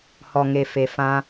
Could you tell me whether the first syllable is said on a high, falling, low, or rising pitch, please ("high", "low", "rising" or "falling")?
low